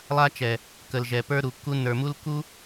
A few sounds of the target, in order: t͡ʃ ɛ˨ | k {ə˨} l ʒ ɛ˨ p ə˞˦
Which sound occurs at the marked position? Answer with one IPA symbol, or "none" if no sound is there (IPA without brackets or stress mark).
ə˨